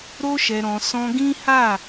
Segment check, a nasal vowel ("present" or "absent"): present